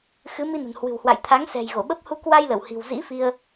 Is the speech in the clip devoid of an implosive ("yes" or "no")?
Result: no